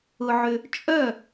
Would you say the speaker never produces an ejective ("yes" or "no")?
no